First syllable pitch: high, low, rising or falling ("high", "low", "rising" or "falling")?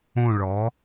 falling